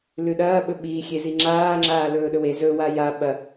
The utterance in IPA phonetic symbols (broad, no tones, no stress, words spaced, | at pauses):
lʉɗɐːɓɵ ɓiːxʲezi ŋ͡ǁaː ŋ͡ǁaːlɵːɗɵwe zɵwa ja ɓɐ